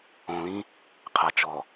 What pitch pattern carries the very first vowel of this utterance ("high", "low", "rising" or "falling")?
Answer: low